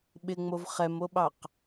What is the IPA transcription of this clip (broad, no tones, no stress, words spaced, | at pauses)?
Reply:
ɓɪŋ͡mov χɛmoɓɑq